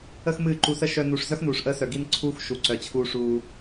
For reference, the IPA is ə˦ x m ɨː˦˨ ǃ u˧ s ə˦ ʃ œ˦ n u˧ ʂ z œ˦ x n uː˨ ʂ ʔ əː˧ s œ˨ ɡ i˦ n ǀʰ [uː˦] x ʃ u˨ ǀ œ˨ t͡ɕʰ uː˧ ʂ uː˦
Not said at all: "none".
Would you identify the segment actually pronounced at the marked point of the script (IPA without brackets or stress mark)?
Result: uː˦